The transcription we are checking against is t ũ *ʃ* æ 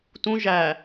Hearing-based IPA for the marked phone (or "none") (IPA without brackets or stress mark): ʒ